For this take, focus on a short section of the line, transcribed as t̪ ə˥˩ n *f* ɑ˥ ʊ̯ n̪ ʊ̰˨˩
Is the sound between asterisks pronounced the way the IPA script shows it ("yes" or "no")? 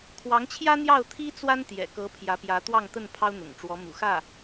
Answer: no